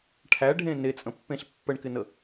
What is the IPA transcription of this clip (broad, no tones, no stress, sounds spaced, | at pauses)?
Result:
ʈʰ æ ɖʱ ẽ n e t͡sʼ ə̃ pː ẽ ɬ pː ə ɳ k ɪ n ə